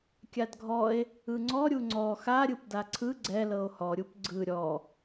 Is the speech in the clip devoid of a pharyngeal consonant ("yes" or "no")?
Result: yes